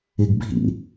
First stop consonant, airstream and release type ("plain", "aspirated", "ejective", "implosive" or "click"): plain